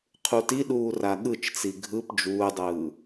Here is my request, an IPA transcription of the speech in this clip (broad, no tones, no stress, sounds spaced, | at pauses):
qʰ u t i ɗ uː r a ɠ ɯ t͡ʃ t͡s i ɡʱ ɯ p d͡ʒ uː dˤ ɯː